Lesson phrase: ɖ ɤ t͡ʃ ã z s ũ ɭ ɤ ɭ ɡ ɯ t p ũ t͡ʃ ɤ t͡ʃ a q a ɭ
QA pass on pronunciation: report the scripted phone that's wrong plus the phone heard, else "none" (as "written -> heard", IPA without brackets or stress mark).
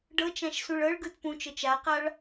z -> ʃ